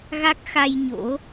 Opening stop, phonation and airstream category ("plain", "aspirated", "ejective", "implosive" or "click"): plain